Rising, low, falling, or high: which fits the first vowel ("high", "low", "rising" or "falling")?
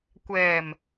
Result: low